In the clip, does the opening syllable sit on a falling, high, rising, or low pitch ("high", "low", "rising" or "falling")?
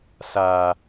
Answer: low